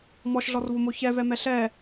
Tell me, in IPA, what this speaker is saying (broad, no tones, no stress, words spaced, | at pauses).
mɔʃɮɔrvomo çɛvɛmɛ ɬɛ